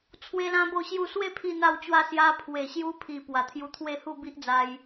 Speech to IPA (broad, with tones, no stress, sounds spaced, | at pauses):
t͡sʰ w e˦ l ã˦ b o˥˧ ɕ j u˥˧ s w e˥˧ pʰ i˧ n̪ a˧ w t͡ɕ w a˧ s j a˧ pʰ w e˨˩ ɕ j u˧ pʰ i˨˩ p w a˨˩ t̪ʰ j u˧ t̪ʰ w e˥˧ h u˥˧ b i˦ ʔ d͡z a˧ j